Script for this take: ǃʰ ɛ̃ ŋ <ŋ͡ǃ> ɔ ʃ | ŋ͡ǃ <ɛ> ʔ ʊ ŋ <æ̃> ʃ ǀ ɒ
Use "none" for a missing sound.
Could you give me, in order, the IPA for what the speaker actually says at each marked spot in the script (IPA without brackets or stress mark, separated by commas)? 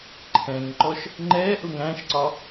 ǃ, ɛ, æ̃